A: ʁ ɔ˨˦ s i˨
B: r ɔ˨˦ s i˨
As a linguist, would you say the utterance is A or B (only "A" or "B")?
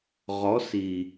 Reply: A